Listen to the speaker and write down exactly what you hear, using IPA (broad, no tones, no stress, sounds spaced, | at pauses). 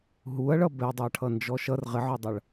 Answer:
ɦ u ɐ̯ ɭ ʌ b ɛ dˤ ɜ ʈʰ ʌ n d͡ʒ ɔ ʃ ʌ r ʁ ɪ ʕ ɒ dˤ ʌ ɭ